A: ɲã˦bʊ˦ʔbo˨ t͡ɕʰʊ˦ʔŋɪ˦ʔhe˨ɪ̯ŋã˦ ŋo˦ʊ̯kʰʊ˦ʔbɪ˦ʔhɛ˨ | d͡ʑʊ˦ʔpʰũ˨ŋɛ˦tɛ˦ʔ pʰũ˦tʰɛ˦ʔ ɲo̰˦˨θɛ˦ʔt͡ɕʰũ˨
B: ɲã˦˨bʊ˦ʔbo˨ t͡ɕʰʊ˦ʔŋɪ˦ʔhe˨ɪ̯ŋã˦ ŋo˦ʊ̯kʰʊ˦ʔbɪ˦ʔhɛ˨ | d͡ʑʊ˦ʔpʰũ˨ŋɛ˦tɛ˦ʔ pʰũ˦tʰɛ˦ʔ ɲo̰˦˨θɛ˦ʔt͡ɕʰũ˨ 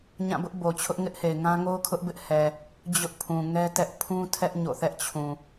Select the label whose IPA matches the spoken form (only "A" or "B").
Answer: B